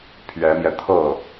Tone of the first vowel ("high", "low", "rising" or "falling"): rising